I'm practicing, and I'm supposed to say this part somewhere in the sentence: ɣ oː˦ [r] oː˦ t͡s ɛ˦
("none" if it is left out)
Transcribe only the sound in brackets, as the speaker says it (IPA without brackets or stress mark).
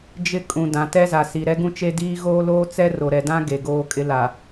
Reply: l